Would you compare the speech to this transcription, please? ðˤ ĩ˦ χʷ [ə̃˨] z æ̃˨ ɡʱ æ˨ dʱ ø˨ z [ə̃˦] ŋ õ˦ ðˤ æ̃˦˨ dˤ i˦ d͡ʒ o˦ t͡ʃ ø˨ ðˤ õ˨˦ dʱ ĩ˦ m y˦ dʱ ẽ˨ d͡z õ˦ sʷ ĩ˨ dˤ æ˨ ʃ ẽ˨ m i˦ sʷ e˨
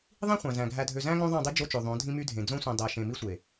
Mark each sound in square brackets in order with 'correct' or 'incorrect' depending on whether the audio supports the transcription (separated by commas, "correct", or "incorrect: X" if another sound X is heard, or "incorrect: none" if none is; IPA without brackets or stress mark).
incorrect: æ̃˨, incorrect: æ̃˦